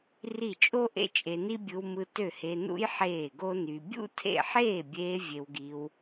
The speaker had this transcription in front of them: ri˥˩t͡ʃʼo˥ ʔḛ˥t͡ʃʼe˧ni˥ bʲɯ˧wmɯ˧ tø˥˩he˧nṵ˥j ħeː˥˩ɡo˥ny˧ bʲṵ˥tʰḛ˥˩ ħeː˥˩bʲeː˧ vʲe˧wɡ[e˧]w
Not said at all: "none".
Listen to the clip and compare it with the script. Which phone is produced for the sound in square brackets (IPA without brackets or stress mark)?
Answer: i˧